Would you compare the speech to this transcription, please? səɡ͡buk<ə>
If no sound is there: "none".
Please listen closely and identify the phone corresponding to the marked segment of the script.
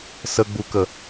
ə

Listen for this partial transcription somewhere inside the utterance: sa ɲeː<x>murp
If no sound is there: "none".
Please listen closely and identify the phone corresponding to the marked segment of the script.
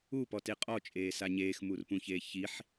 x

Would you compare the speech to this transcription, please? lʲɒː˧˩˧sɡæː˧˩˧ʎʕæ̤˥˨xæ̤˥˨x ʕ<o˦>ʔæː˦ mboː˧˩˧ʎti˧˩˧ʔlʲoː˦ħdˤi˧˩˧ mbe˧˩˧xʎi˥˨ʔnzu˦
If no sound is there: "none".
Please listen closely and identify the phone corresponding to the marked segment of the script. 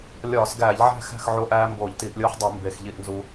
o˦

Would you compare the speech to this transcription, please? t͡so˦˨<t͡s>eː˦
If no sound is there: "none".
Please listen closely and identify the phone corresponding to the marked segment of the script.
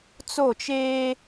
t͡ʃ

